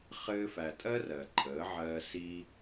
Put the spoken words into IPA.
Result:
χɘː˧fæ˨tʼɜ˦ rɜ˨ǃʰəː˨˦ʕɜː˧ siː˧

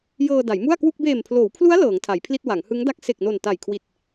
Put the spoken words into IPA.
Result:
jɤː˧da˩˦jmu˥˩a̯kwu˥˩k̚ beː˨˩mpʰloː˩˦wpʰlu˦˥a̯ lɤː˩˦ŋtʰa˩˦jpʰli˥˩t̚ wa˩˦ŋhɯ˦˥ŋ da˦˥k̚se˨˩k̚no˨˩n ta˨˩jkʰwi˨˩t̚

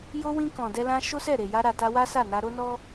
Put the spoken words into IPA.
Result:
jo˧wĩ˧ kɔ̃˨dɛ˧lã˧ ʃo˦sɛ˦˨ɾe˨ja˧ ɾa˨ta˧ wa˦sa˦˨ na˧ɾo˦nɔ˦

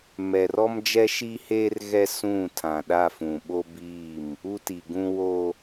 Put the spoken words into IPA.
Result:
mɛ˨rɔ˦md͡ʒɛ˦ ʃi˦heː˦r ɣɛ˦sũ˦˨tʰã˨ ɗa˦˨fũ˨ɓo˦biː˦˨m | u˦ti˨ɡũ˦wo˦

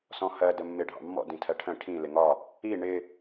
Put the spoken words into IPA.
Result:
sɔ̃hɜ dəmːɪ ɖʱɑ̰mːɔ̰ dĩtʰɜʈʰə̃ ʈʰĩ lɪŋɒ | i ɳɪ

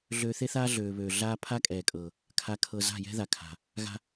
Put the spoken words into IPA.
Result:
ɮøː˧θe˦θaː˦ ɮøː˨βøː˨ ɮaː˦ pʰa˦kʼɛː˨kʼɤː˨ | kʰa˧kʰɤ˧ za̤˦˨jɛ̤˦ða˨kʰa̤˨ | ɣa̤˦

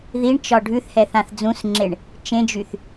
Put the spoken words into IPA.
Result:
ðiɳt͡ʃɒ ɖʱʉθhɛ θãθd͡zũsŋ͡ǁeɳ | t͡ʃẽd͡ʒyθ

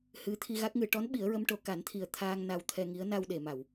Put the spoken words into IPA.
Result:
hɨ˧˥ t̪ʰi˧ɣa˦˥k̚ŋɨ˨˩˦ ʈɔ˧˥nɓi˨˩˦ə̯ ɹə˧˥mʈo˨˩˦ ka˨˩˦nt̪ʰi˨˩ə̯ t̪ʰaː˧ŋ na˧wt̪ʰɛ˧ŋi˧˥ə̯ na˧wɗe˨˩˨ma˨˩˨w

